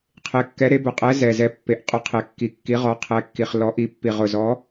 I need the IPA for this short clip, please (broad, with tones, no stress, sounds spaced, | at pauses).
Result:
qʰ e˨˥ kː ɛ˨˥ ɾ e˨˥ b ʊ˨˩ qʼ ɛ˨˥ z ɛ˨˩ z ɛ˨˥ pː e˨˩ ʔ qʼ ʊ˨˥ qʰ e˨˩ kː i˨˩ kː i˨˥ ʁ ɔ˨˥ qʰ ɛ˨˥ kː i˨˩ χ l ɔ˨˥ ʔ i˨˥ pː i˨˩ ʁ ʊ˨˩ z ɔ˨˥